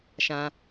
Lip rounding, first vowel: unrounded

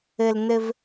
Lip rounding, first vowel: unrounded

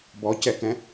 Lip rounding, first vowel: rounded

